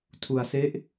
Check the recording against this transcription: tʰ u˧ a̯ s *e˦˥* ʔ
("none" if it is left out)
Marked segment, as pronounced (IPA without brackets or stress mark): e˦˥